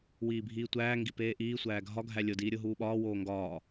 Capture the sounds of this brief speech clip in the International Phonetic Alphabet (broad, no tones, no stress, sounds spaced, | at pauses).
w iː bʱ iː tʷ æː ŋ ɡ i p eː ʔ iː sʷ æː ɡʱ ɒ ɡʱ æ lʲ o d iː ɾʲ o ɦ uː ɓ ɒː w oː ŋ ɡ ɒː